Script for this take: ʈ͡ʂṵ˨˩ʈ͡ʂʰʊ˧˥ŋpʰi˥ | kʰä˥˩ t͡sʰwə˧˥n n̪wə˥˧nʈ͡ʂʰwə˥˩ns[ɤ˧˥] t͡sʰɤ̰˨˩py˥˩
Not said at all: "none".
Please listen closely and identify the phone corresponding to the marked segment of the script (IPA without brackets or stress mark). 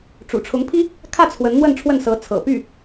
ɤ˧˥